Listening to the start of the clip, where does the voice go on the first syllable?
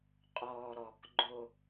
low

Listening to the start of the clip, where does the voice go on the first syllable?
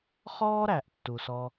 high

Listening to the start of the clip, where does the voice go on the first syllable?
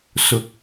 rising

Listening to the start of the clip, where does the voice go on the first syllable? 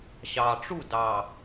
low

